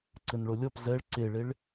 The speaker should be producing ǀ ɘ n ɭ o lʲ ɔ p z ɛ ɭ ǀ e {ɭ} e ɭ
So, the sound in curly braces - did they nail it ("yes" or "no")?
yes